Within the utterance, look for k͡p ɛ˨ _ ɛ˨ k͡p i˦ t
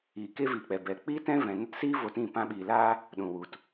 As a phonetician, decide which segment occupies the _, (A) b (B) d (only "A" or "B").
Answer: A